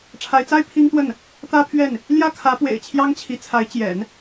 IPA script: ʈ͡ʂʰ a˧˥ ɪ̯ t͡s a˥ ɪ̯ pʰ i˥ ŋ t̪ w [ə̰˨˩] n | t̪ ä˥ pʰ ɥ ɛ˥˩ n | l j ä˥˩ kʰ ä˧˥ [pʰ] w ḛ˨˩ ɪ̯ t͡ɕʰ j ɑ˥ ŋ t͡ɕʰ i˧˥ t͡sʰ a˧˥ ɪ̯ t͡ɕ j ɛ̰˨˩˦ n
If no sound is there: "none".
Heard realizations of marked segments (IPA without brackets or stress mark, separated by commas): ə˥˩, p